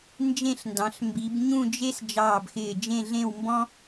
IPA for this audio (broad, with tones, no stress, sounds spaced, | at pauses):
n d͡ʒ ẽ˥˧ ɬ n d ɑ̃˩˧ ɬ m b i˩˧ b ɲ ũ˥˧ d͡ʒ e˥ s d͡ʒ ɑː˧˩ b x ɪː˧˩ d͡ʒ ẽ˥˧ ɮ ẽ˥˧ w m b ɔ̃˥